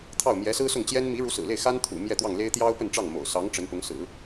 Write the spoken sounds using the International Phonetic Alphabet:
t̪ʰ ɑ˥˩ ʊ̯ m j ɛ˧˥ s ɹ̩˥ s ʊ˥˩ ŋ t͡ɕ j ɛ˥ n m i˧˥ ɻ u˧˥ s ɹ̩˨˩ l e˥˩ ɪ̯ x a˥ n t̪ʰ ṵ˨˩ m j ɛ˥˧ t̪ w ɑ˥˩ ŋ l e˥ ɪ̯ t̪ j ɑ˥ ʊ̯ p ə˥˧ n ʈ͡ʂ ɑ˥˩ ŋ m o̰˨˩ ʊ̯ s ɑ˧˥ ŋ ʈ͡ʂ ə˧˥ n p ʊ˧˥ ŋ s ɹ̩˨˩˦

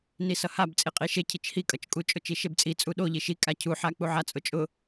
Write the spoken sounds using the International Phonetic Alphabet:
n i s ʌ h a b t͡sʼ i qʼ i ʃ e cʰ i t͡ʃ h i kʼ ʌ t͡ʃ kʼ u t͡ʃʼ ʊ t͡ʃ i ʃ e b t͡sʼ i t͡sʼ u ɗ o ʎ i ʃ i kʼ a cʰ u ħ a k͡p u ʕ a t͡sʼ ʊ t͡ʃʼ ʊ

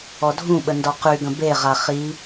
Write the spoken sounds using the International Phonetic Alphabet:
ɔ dʱ ũ ɓ ə n d ɔ q y ɡ ə̃ b e ʁ a χ i

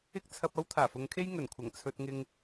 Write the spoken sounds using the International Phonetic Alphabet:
ɪ˥ k̚ t͡sʰ ɐ˧ p̚ ɐ˥ w t̪ʰ aː˨˩ f ʊ˨˧ ŋ kʰ e˥ j ŋ ɵ˨˩ n kʷʰ ɐ˨˩ ŋ t͡sʰ ɵ˧ t̚ ŋ ɪ˧ ŋ

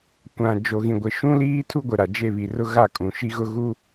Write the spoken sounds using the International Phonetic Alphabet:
kʷ ã˨ d͡ʒ o˨ ɣ ĩ˨ ɡʷ ɪ˨ ʃ ũ˦ l iː˦ tʰ u˦ ɡʷ ɪ˨ ɾ a˨ d͡ʒ e˦˨ β i˨ r ʊ˦ ɣ a˦˨ kʼ ũ˨ ʃ i˦ ɣ ʊ˦ ɣ u˦

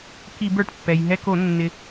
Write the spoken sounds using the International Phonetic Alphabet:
k i˧˩˧ b ə˞˩ ʈ pː ɛ˩ j ɦ ɛ˧ k o˧˩˧ nː ɪ˩

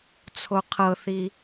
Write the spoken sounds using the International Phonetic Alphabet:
t͡sʰ o qʰ ɤ θ i

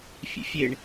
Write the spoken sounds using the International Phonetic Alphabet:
fʲ ḛ fʲ e ɳ

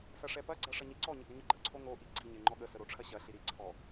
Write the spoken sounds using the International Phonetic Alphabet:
s ɐ ʂ ɛ p ɐ ɡ͡ǀ ɐ ʂ ɐ ɲ i ǀ ɔ ɲ ə ɡ ə ɲ ɐ ɡ͡ǃ ə ǀʰ o ŋ o ʔ i ɡ͡ǀ i ɲ ɛ ŋ͡ǃ ɔ ɠ ə s ə ɾ o ʈ͡ʂʰ ɐ ɕ ɐ ɬ i ɾ i ǀʰ ɔ

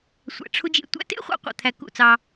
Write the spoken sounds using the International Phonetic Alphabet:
sʷ æ̰˨ ʈ͡ʂʰ u˧ d͡ʒ ḛ˨ tʷ æ̰˧ t ḛ˦ χʷ ɑ̰˦ qʷ æ̰˨ t̪ʰ æ˨ k ṵ˦˨ t͡s ɑ˧

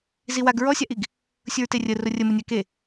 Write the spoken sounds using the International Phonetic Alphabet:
z i w a ɡ ɹ ɔ sʲ a ʔ i ɡ | sʲ ʊ ɹ t e rʲ ə r ʊ rʲ ə m ʊ nʲ a k e

